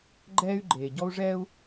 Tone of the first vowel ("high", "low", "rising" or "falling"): high